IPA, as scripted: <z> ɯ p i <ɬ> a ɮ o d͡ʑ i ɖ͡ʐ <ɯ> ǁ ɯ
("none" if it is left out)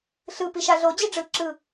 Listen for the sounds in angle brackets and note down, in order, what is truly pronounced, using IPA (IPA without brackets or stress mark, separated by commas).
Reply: ɬ, ʃ, ɯ